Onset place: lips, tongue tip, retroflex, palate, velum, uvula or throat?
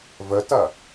lips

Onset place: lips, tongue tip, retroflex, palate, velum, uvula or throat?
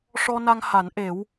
retroflex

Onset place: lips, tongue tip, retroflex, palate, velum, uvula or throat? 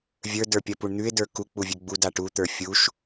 lips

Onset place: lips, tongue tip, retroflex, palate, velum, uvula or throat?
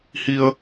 throat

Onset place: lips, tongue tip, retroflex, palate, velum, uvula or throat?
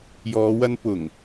palate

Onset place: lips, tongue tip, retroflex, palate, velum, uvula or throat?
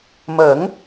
lips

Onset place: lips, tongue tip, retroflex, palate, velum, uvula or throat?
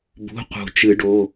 lips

